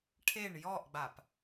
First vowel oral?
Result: yes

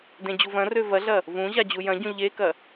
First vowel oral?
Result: no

